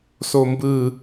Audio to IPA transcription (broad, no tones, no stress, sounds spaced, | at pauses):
s o m b ɯ